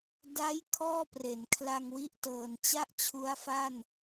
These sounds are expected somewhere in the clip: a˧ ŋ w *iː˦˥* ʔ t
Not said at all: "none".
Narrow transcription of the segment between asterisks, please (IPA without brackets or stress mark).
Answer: i˦˥